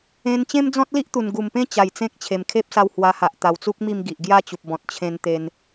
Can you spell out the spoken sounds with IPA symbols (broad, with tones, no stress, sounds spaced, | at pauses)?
ẽ˧ n t͡ɕ ẽ˦ m d͡z ɔ̃˦ t̚ l i˦ ʔ t̪ u˨˩ n ɡ u˨˩ m p ẽ˦ t͡ɕ a˨˩ j t͡s ẽ˦ k̚ t͡ɕʰ e˨˩ m kʰ e˦ p̚ s a˧ w h w a˧ h a˨ ʔ t̪ a˨˩ w t͡s u˦ k̚ m i˥˧ m ɡ i˨ ʔ ɡ j a˥˧ t͡ɕ u˨ p̚ b ɔ̃˨ t̚ t͡ɕʰ ẽ˧ n t̪ e˧ n